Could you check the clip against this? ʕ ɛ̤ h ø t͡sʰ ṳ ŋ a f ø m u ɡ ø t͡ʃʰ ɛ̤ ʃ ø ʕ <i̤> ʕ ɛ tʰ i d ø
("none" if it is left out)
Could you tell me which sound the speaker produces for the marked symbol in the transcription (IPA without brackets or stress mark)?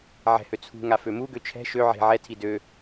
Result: e̤